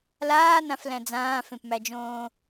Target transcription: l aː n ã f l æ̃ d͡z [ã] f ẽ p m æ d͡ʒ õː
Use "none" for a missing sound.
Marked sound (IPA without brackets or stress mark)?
ãː